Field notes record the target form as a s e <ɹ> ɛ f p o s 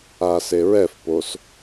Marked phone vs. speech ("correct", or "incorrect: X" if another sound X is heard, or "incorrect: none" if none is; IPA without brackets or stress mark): correct